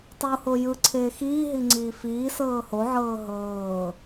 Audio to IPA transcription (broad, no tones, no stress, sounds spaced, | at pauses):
tˤ u h o j ɯ ǀʰ eː x iː ɦ i ŋ͡ǀ iː f iː s ɤː h o ʕ ɤː ɦ ɤː